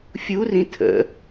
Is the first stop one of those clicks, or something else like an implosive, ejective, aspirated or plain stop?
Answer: aspirated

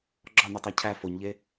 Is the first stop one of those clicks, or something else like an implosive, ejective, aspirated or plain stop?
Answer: click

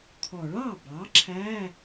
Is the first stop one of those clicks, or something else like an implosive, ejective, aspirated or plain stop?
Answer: aspirated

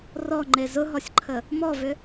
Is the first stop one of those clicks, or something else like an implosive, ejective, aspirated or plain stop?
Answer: click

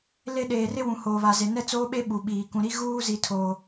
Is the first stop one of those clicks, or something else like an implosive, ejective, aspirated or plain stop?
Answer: implosive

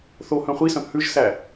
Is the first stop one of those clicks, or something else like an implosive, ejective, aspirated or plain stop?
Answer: plain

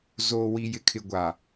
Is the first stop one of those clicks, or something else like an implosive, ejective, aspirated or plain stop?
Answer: aspirated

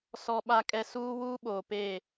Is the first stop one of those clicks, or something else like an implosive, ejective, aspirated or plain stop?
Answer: implosive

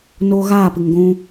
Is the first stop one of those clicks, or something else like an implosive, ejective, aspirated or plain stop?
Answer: plain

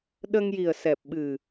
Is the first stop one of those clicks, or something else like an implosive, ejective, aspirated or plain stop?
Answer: implosive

